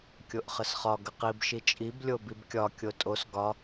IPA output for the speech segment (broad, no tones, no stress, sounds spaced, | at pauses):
kʲ o ʔ χ ə s χ ɒ ɡ ə q i b ʃ i t͡ʃʼ i b lʲ o b i b kʲ ɒ kʲ o tʼ o s ɡ ɒ